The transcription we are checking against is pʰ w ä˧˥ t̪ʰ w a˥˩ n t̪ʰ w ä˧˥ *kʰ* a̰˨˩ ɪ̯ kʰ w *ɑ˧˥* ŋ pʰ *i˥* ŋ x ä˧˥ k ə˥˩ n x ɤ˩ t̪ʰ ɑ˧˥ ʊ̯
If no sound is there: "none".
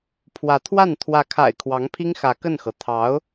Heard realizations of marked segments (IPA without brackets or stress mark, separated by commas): kʰ, ɑ˧˥, i˥